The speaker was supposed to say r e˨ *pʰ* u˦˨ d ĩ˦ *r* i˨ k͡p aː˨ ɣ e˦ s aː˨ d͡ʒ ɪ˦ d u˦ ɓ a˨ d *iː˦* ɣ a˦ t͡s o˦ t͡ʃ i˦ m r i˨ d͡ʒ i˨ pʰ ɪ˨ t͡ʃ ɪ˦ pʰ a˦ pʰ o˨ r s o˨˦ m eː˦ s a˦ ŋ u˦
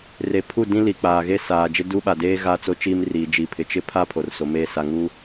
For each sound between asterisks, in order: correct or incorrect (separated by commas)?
correct, incorrect, incorrect